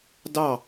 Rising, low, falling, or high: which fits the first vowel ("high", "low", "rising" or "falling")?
falling